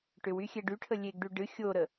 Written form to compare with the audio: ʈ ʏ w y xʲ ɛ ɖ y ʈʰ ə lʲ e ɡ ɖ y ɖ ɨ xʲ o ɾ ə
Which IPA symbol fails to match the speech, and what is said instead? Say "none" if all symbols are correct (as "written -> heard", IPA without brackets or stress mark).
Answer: none